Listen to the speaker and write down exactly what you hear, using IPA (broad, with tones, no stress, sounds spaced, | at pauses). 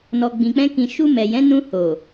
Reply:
n ɔ˧ ɡ͡b ĩ˧ k͡p ɛ̃˦ k ĩ˧ ʃ u˧ m ɛ˨ j ɛ̃˨˦ n ũ˧ h o˨